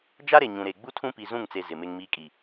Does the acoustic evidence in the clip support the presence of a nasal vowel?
yes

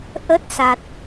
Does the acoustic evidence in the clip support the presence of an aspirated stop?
no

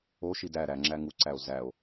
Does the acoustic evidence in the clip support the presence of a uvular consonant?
no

